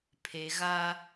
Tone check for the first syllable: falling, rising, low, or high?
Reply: low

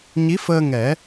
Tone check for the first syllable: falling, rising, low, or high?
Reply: rising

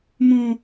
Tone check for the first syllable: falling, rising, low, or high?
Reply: high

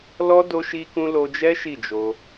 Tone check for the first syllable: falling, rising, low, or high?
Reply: high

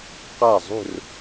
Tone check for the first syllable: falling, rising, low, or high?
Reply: falling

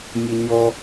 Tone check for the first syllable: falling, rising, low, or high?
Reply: high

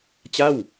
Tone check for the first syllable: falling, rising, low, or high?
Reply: falling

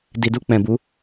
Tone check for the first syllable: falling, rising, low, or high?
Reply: low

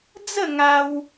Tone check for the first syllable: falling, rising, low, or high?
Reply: falling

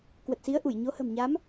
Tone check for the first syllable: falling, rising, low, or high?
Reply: low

